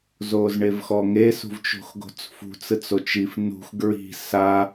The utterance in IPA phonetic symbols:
z oː z ɳ e v x ɔ ŋ e s ṳ v t͡ʃ o̤ x ɡ o̤ t͡s f ṳ t͡s ɯ t͡s o t͡ʃ i f n ṳ x ɡ ɹ i̤ s a

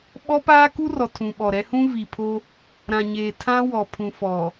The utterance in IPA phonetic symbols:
ɓ ɔ˦ p aː˦ k u˦ r ɔ˨ tʰ ũ˨ ɓ ɔ˨ ɾ ɛ˦ h ũ˦ v i˨ pʰ o˦ | ɾ ã˨ ɲ eː˨ tʰ ã˦ w ɔ˨ pʰ ũ˨ f ɔ˨

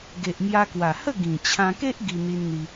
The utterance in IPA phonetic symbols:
ɡ e˨ ʔ m j a˧ k w a˨˩ h ə˥˧ ɡ ĩ˨˩ t͡ɕʰ ã˧ k e˦ ʔ ɡ i˧ n̪ i˧ n n̪ i˧

